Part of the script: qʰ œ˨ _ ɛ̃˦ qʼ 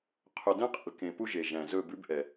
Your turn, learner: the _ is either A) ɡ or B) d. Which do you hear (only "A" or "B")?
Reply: B